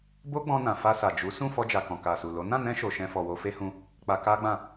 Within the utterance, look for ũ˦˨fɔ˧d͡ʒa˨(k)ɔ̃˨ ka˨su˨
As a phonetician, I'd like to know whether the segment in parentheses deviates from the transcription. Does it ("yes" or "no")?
no